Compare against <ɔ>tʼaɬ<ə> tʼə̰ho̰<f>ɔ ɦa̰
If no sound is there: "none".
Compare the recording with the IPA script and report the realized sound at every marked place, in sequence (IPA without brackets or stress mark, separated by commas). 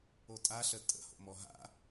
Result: o, ə, m